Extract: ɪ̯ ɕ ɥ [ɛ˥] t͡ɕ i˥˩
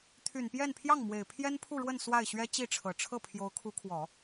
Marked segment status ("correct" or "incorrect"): correct